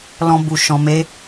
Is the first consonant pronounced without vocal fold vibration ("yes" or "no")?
no